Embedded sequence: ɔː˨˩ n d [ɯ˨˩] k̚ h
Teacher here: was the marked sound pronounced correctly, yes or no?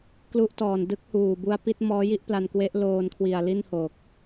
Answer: no